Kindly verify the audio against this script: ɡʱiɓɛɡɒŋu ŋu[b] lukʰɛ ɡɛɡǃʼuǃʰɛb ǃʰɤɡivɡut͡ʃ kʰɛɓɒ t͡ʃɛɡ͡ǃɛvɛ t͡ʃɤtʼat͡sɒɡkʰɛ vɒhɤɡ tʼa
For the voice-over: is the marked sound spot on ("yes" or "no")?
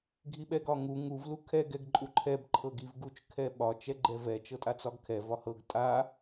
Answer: no